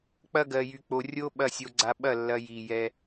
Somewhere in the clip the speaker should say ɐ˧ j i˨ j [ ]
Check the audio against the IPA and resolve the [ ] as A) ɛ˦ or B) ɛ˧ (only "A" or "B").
B